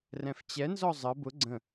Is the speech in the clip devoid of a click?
no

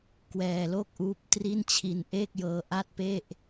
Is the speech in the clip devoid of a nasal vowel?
yes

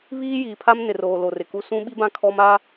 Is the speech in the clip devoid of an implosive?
no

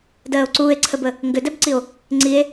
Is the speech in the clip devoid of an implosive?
yes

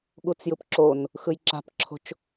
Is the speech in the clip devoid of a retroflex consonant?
yes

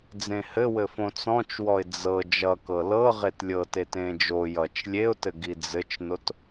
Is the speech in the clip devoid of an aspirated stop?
yes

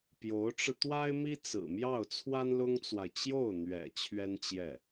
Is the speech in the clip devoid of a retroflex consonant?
no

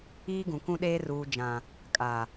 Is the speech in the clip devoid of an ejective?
no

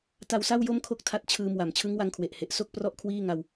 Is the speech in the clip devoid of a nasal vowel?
yes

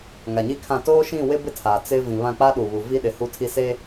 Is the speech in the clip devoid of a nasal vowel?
no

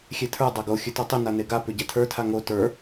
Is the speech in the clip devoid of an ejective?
yes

